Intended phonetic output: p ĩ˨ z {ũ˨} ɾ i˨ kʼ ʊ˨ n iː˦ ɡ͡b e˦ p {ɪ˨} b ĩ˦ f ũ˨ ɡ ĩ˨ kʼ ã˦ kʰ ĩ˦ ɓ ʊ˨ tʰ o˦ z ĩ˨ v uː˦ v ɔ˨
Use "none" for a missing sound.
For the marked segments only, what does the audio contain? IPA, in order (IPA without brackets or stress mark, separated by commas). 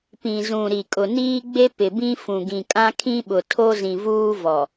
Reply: ũ˨, ɪ˨